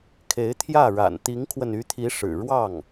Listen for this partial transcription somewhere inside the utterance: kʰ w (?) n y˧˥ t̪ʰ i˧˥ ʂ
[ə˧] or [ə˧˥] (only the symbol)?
ə˧